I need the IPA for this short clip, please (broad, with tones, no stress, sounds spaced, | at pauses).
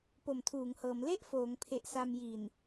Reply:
p o˨˩ m tʰ uː˩˦ ŋ h ɤː˩˦ m l e˥˩ ʔ f oː˩˦ ŋ pʰ e˨˩ ʔ s a˧ m j i˨˩ n